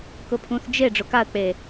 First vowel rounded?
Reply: yes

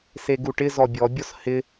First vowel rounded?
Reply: no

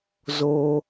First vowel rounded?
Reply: yes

